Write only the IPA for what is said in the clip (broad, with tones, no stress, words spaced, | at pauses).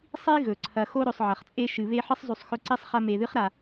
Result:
sˤi˥ ɣɵ˩ǀʰɐ˨xo˦ ɾɵ˨sˤʕɐ˩χt͡sʼe˦ ʃɨ˩βe˦ ħɨ˥sˤzˤʉ˨sˤ xɵ˦ǀi˥sˤχɐ˦ me˨ðɨ˥χɾa˨